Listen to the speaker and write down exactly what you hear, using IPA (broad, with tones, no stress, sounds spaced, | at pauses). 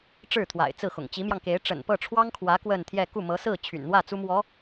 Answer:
ʈ͡ʂ ɻ̩˥˩ t̪ʰ w a̰˨˩ ɪ̯ t͡s ɹ̩˥˩ x ʊ̰˨˩ ŋ t͡ɕ i˧˥ m j ɑ˧ ŋ k e˧˥ ɪ̯ ʈ͡ʂ ə̰˨˩ n p ɤ˥˩ ʈ͡ʂʰ w ɑ˥ ŋ kʰ w ä˧˥ k w ə˥˧ n t̪ʰ j ɛ˥˧ k u˥˩ m ɤ˧˥ s ɹ̩˥˩ t͡ɕʰ y̰˨˩ n n̪ w ä˥˩ t͡s u˥ m w ɔ˧˥